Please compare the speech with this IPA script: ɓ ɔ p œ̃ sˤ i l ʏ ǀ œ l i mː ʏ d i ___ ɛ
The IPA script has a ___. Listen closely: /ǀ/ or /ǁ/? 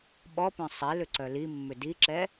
ǁ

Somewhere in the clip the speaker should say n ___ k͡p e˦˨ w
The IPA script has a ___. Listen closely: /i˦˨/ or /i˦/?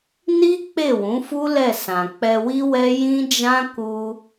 i˦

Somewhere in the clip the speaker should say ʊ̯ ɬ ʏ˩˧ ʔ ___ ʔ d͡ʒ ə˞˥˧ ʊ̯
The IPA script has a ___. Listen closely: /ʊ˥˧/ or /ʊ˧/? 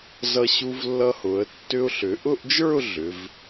ʊ˥˧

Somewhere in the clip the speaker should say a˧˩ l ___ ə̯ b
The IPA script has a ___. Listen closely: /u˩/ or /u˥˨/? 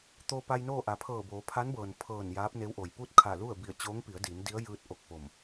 u˥˨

